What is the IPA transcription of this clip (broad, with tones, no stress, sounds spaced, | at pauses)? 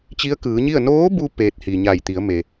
t͡ɕ i˧˥ ə̯ k ɯː˩˧ ɲ i˥˨ ə̯ n oː˧˥ b u˧ p eː˧ t̚ h i˩ ɲ a˧˩ j t̪ i˩˧ ə̯ m e˩